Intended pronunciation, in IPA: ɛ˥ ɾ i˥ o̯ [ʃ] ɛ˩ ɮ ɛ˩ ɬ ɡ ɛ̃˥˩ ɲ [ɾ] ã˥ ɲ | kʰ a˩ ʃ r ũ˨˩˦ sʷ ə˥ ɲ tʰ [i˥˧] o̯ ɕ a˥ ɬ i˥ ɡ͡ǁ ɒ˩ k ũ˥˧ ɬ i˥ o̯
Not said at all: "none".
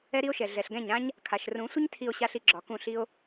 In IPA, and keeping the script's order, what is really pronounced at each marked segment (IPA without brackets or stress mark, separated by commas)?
ʃ, ɾ, i˥˧